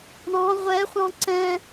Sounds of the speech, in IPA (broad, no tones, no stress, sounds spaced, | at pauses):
ɳ ɑ̃ ʁʷ ɛ χʷ ɑ̃ ǀ ɛ̃